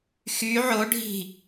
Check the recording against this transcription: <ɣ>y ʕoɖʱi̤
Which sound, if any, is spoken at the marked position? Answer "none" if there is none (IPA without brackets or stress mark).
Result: x